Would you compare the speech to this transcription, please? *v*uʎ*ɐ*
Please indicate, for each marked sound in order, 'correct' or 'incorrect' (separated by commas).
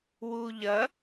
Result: incorrect, correct